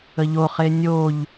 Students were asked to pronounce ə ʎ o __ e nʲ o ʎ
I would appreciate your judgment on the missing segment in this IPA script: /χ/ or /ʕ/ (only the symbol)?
χ